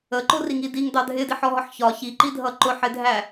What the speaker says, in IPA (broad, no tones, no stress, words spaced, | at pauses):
əǃʊriŋi diŋdɑ dʱɪdiħɔɦɒħ çɒ çiǃidʱʌ ǃʊħɪdʱæ